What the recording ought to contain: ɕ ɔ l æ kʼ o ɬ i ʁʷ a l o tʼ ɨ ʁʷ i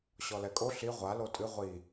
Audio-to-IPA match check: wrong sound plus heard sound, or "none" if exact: æ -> ɛ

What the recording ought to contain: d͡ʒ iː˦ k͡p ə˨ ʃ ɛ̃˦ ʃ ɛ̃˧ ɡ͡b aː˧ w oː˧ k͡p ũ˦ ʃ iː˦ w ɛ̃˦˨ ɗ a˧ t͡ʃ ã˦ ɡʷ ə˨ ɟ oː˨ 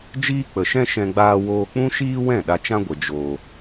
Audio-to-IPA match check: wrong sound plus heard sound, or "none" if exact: ɟ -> d͡ʒ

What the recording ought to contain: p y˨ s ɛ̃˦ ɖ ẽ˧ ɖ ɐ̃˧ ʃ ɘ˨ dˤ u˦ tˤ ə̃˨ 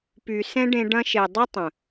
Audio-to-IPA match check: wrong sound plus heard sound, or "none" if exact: ɘ˨ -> e˨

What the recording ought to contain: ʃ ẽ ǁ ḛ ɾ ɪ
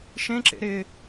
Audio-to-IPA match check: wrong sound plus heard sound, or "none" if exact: none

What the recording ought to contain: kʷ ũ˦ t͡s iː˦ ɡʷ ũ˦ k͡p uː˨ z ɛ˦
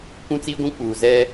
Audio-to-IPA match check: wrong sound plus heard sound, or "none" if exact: none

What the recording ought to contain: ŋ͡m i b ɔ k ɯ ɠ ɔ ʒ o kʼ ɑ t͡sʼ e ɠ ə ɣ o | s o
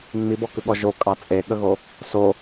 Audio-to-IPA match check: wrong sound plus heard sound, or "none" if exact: none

